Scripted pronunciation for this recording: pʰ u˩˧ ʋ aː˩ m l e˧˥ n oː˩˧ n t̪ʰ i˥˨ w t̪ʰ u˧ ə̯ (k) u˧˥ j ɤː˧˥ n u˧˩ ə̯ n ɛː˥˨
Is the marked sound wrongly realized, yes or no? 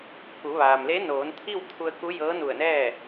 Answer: no